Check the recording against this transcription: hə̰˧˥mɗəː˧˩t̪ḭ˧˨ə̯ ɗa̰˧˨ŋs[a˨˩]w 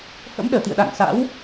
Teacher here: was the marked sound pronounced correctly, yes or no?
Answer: no